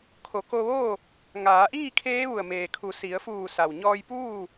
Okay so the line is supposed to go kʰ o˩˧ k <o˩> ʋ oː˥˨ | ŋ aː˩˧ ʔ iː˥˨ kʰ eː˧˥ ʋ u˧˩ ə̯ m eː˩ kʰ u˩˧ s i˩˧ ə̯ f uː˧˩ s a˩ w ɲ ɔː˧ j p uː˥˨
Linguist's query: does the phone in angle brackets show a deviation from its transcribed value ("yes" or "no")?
yes